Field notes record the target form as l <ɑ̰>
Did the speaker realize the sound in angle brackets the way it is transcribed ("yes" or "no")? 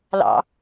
yes